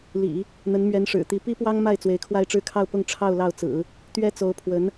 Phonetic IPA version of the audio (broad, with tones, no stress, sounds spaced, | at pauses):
l ḭ˨˩˦ | n̪ ə˧˥ n m ɥ ɛ˧˥ n ʂ ɻ̩˨˩ t̪ i˧˥ p i˥ p w ɑ˥ ŋ m a˥˩ ɪ̯ t͡s w e˧˥ ɪ̯ kʰ w a˥˧ ɪ̯ ʈ͡ʂ ɻ̩˥˧ kʰ ɑ˥˧ ʊ̯ p ʊ˥˧ ŋ ʈ͡ʂʰ ɑ˥˧ ʊ̯ l ɑ˥˩ ʊ̯ t͡s ɹ̩˨˩˦ | t̪ ɥ ɛ˥ t͡s o˧˥ ʊ̯ pʰ w ə˧˥ n